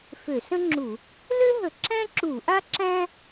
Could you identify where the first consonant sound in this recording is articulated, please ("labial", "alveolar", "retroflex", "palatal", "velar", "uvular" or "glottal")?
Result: labial